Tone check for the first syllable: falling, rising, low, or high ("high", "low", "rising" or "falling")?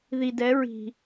low